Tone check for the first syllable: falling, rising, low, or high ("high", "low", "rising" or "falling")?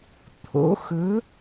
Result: rising